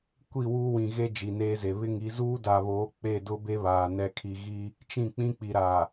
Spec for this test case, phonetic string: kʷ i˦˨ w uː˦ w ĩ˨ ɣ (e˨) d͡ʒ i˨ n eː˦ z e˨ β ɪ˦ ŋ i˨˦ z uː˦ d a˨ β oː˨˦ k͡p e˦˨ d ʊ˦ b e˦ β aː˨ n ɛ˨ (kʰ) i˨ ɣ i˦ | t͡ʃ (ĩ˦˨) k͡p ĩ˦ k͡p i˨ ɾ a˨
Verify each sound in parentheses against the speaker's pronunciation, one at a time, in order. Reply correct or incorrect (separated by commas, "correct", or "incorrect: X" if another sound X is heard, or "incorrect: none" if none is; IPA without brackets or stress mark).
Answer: incorrect: e˦, correct, correct